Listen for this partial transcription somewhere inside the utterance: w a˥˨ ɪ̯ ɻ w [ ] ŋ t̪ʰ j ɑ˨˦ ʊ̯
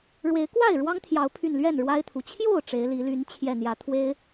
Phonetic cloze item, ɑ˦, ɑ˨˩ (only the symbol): ɑ˦